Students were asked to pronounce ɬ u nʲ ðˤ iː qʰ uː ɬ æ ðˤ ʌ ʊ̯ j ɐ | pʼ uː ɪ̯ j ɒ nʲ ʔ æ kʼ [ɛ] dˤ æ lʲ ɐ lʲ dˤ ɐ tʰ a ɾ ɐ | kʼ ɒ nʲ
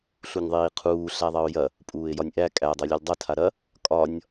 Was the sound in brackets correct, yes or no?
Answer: no